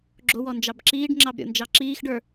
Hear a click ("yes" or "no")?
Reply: yes